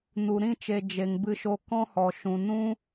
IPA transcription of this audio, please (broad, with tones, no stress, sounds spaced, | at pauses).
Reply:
n u˨ ɾ ĩ˦˨ t͡ʃ e˨ d͡ʒ e˨ ŋ b ɨ˧ ʃ o˧ k ɔ̃˦ h ɔ˨ ʃ ũ˨ n ũ˦